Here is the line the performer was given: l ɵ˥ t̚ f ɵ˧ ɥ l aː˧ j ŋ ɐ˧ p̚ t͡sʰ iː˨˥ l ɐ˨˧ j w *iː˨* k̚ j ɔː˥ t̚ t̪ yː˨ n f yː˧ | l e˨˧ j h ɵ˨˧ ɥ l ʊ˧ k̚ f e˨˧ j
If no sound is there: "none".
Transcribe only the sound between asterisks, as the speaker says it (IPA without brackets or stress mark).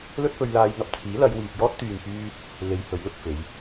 iː˨